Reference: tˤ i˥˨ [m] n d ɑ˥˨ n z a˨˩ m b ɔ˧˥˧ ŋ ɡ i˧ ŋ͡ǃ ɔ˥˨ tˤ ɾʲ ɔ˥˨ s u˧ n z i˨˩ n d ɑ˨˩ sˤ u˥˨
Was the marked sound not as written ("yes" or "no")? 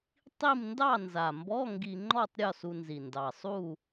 no